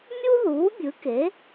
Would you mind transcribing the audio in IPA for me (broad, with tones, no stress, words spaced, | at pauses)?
mʲu˥ðuː˩˥ bʲɯ˩˥ke˩˥